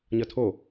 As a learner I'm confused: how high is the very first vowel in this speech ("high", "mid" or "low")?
mid